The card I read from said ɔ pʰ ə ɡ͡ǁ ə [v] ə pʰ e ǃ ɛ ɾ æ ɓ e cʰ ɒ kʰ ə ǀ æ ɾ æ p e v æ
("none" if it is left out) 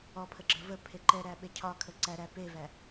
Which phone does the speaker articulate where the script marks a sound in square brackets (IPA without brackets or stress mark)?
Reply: v